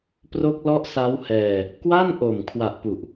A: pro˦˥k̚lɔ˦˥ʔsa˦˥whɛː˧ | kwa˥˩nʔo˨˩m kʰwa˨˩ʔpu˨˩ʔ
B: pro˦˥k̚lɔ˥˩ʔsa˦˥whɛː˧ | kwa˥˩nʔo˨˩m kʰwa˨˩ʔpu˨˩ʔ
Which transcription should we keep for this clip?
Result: A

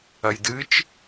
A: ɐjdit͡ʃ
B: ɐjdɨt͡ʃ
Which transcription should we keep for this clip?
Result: B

